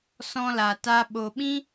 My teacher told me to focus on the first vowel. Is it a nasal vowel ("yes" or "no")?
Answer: yes